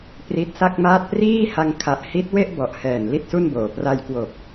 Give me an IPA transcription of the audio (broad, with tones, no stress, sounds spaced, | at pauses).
p r i˦˥ t̚ s a˥˩ k̚ m aː˥˩ t̚ p r iː˥˩ h a˧ ŋ kʰ a˨˩ ʔ h i˦˥ t̚ w e˥˩ ʔ b ɔ˨˩ ʔ h ɛː˨˩ n l i˥˩ t̚ s u˥˩ n b oː˨˩ p r a˧ j k w o˨˩ k̚